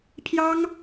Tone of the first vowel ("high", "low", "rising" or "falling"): high